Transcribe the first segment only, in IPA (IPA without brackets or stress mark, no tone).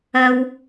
ɐ